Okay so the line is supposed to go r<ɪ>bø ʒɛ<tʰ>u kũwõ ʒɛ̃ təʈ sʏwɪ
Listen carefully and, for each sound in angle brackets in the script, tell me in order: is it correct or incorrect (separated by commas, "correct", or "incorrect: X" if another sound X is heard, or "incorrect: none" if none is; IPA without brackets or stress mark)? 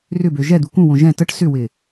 incorrect: ʏ, incorrect: d̪